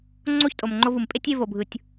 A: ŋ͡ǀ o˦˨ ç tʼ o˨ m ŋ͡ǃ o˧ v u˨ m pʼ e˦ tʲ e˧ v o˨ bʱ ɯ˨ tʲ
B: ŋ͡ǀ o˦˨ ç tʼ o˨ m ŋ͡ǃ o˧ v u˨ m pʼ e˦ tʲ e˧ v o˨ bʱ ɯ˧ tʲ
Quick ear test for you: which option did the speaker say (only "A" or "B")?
A